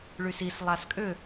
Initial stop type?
ejective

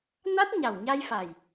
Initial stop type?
plain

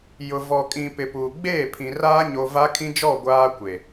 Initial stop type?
ejective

